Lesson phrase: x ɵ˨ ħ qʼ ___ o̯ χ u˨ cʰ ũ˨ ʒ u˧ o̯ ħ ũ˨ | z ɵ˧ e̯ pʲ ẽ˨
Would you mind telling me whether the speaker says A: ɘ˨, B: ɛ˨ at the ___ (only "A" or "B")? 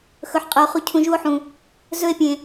A